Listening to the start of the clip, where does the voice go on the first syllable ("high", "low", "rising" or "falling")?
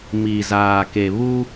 low